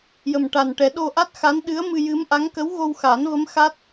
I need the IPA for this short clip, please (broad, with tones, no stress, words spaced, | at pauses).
jə˨˩mʈa˨˩n ʈɛ˨˩˦ɗo˧ ʔa˦˥t̚xa˧˥nɗɨ˧˥ə̯ mɨ˧jɨ˧˥mʔa˧˥ŋ kə˧˥wɣo˧wxa˨˩˦n və˧˥mxa˦˥t̚